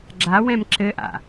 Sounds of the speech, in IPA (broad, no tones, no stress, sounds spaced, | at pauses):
ɡ͡ǁ a w ɛ̃ m ǁ ɘ ʔ a̰